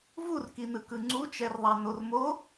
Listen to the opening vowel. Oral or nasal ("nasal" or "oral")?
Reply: oral